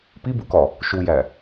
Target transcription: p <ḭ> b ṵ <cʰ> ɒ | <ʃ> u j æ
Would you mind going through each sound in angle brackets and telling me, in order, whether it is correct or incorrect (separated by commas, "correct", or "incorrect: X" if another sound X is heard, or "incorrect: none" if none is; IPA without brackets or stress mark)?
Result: incorrect: i, incorrect: k, correct